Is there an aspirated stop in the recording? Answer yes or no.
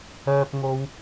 no